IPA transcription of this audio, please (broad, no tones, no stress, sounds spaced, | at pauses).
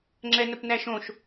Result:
ŋ͡ǁ ɛ n ə p n æ ʃ õ ʃ